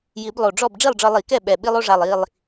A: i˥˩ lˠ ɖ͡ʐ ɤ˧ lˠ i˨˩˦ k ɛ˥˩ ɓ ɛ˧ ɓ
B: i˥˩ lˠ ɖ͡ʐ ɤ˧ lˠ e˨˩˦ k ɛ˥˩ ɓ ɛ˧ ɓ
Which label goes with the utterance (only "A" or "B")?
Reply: A